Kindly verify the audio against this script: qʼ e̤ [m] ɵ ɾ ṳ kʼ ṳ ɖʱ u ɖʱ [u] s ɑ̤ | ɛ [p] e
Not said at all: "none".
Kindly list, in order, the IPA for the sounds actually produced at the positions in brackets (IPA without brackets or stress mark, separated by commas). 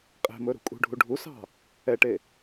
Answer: m, u, ʈ